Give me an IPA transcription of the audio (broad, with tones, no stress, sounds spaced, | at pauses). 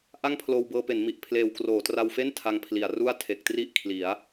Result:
ʔ a˥˩ ŋ pʰ l oː˧ w b ɤː˧ p e˩˦ n m i˨˩ ʔ pʰ l eː˨˩ w k r oː˩˦ t r a˧ w f e˥˩ n tʰ a˧ ŋ pʰ l i˨˩ a̯ r u˥˩ a̯ tʰ e˨˩ k̚ t r i˥˩ ʔ kʰ l i˩˦ a̯